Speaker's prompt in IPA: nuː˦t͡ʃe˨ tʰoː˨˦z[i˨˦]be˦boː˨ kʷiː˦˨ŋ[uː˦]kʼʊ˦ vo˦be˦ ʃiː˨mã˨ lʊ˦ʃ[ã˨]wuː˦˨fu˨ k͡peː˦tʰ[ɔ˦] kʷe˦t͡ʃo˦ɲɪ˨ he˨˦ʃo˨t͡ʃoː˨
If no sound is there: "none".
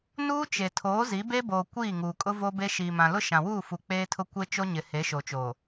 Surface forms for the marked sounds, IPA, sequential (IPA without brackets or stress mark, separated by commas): i˨˦, uː˨, ã˨, ʊ˦